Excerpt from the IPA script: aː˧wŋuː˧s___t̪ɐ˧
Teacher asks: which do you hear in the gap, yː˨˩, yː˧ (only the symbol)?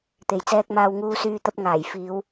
yː˧